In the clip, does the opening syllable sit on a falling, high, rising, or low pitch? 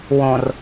low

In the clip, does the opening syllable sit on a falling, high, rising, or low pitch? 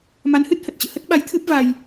rising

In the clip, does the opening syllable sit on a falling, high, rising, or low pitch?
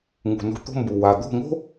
low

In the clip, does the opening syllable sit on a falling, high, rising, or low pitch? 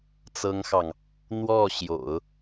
high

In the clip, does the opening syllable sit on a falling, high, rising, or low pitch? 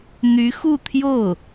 rising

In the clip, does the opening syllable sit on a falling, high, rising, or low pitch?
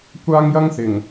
high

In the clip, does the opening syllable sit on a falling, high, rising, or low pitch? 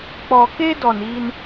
low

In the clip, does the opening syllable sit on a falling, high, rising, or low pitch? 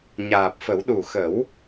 low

